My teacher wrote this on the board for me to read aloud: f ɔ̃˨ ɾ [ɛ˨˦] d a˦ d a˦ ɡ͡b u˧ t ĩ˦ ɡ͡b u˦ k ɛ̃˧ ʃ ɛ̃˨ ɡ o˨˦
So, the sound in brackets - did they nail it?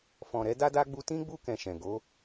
yes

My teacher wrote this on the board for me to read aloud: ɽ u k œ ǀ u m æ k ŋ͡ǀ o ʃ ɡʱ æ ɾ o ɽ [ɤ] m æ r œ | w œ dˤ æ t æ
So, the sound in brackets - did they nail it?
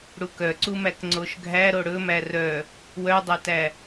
no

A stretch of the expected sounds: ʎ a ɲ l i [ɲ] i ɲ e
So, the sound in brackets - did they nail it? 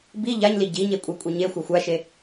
no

